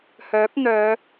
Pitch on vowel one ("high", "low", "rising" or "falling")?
rising